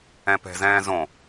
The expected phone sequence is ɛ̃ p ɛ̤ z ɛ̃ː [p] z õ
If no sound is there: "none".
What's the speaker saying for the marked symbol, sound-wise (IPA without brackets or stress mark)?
none